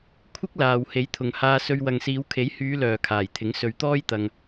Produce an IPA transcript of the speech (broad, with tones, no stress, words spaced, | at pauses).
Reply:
kʷʰɪ˥k̚laː˨w he˨˥jt̪ʰʊ˨ŋhaː˧sɵ˧ɥ wɐ˨ŋsiː˨˧wkʰe˨˥jhyː˨˧ lœː˨kʰaː˨˩jt̪ʰɪ˨˥ŋ sɵ˨˧ɥt̪ɔː˥jt̪ɐ˧ŋ